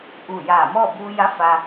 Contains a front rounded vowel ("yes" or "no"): no